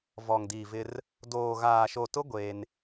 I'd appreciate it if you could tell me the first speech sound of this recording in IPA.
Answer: v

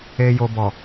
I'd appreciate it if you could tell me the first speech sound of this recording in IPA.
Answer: e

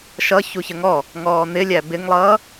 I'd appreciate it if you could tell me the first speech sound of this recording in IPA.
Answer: ʃ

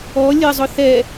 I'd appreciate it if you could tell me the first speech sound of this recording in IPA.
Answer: ɔ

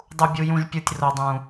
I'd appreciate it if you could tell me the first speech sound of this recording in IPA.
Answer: dˤ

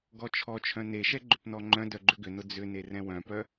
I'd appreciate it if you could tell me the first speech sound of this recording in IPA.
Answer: ɡ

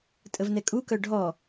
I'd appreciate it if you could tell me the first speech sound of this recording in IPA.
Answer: tʼ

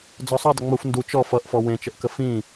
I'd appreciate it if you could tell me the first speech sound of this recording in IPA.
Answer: d͡z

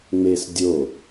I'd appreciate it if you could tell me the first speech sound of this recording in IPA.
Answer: ŋ͡m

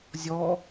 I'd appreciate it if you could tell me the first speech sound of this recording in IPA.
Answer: zʲ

